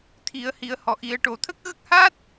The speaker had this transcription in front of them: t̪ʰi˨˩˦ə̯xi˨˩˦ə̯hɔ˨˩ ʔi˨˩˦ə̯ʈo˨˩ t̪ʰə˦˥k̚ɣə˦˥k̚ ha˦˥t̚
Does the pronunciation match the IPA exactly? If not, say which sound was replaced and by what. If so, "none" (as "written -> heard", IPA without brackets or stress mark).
x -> h